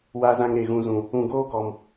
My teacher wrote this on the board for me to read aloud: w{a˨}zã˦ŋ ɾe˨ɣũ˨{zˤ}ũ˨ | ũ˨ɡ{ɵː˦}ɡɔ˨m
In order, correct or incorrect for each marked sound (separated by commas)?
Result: incorrect, incorrect, incorrect